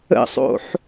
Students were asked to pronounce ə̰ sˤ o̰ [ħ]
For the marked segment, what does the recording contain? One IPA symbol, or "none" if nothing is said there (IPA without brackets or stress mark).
ħ